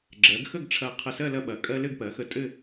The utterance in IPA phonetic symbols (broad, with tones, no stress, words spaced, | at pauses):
ɡ͡ǁɜ˩˧ɡxə˥˧ɡʈ͡ʂʰɐ˧˩ qʰə˧˩sɜ˥˧ lɐ˧ɓɐ˩˧kʼɜ˧ lɘ˥˧ɡpɜ˩˧xə˧ tʼɘ˥˧